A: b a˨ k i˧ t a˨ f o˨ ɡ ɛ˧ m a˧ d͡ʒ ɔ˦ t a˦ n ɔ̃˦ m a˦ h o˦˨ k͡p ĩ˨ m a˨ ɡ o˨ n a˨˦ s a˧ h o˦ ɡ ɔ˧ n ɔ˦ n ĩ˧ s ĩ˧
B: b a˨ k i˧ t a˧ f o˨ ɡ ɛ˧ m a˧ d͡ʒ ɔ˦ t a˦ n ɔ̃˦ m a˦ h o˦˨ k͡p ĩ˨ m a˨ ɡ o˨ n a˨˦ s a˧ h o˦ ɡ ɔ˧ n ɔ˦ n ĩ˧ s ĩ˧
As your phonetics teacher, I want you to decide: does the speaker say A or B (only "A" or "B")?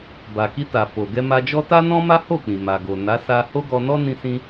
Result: A